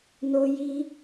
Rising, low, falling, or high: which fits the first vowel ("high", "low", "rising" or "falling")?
high